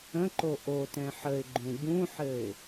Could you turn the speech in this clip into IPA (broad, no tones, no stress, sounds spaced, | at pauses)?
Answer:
ə̃ ǃ o ʔ o t ɛ̃ ħ ə ɪ̯ ɡ͡ǃ ũ ɟ ũ ħ ɘ ɪ̯